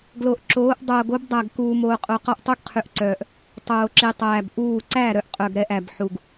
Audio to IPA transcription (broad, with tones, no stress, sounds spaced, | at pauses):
ɡ l o˨ ʔ ǁ oː˨˦ ʔ dˤ oː˨ ɡ o˦ b dˤ æ˨ ɡ k uː˨ m oː˨ qʼ o˨ q ɔ˦ ʔ tˤ u˦ ɡ qʰ y˨ ʔ ǀ œː˨ ʔ | tˤ oː˨ ǁ i˨ tˤ æː˨ b ʔ uː˦˨ ǀ æ˦˨ ɾ œ˨ ʔ qʼ œ˨ ɡ ɾ ɛ˨ ʔ æ˨ b ħ u˨ ɡ